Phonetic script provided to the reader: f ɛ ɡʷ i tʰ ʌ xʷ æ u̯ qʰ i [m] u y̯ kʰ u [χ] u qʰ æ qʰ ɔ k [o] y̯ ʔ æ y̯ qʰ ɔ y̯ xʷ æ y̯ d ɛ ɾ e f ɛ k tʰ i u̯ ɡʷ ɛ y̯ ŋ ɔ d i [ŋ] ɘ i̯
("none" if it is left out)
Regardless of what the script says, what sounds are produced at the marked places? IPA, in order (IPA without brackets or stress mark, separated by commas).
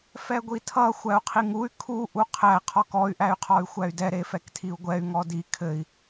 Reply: ŋ, ʔ, ɔ, kʰ